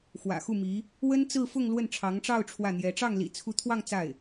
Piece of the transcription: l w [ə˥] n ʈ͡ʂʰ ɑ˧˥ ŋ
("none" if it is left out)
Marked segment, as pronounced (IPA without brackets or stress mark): ə˥˩